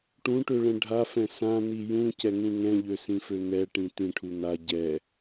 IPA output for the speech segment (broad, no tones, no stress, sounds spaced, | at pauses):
ʈ ũ ʈ ø ɭ ɛ̃ ɖʱ a f ɛ̃ s ã n̪ i j ũ c ɛ ŋ ũ ŋ ɛ̃ ʎ ø s ĩ f ø n̪ ɛ ʈ ĩ t̪ ĩ ʈʰ u n̪ a ɟ ɛ